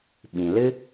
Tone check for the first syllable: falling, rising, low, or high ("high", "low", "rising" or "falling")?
low